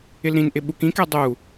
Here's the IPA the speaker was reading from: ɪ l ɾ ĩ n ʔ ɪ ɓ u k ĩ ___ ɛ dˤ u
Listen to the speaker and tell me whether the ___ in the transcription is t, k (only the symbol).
k